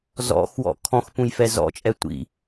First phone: z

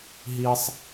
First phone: ɦ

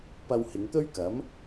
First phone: p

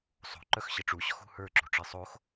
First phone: sˤ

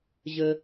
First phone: ʑ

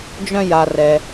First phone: d͡ʒ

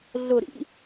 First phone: ɮ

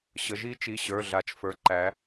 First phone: ɕ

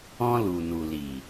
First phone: ɔ̃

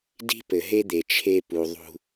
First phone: d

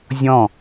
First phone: zʲ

